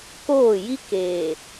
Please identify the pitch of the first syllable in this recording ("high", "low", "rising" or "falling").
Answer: falling